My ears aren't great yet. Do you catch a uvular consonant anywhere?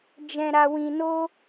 no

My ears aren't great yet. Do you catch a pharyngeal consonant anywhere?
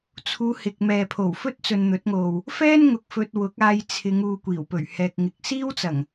no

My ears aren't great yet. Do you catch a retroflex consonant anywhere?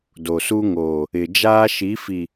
no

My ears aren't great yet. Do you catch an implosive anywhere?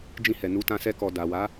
no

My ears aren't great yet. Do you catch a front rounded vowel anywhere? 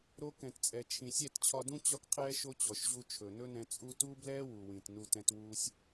no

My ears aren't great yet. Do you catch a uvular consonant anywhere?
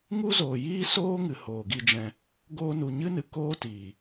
no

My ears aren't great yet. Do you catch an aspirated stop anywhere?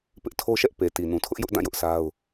yes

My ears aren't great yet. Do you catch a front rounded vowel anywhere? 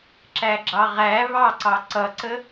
no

